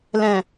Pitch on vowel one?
low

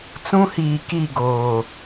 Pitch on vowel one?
high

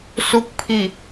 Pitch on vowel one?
low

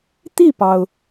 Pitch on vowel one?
falling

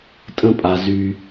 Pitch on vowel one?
high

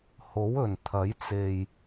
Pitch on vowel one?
rising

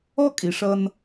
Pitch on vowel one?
high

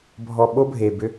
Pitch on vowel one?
low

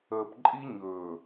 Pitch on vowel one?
low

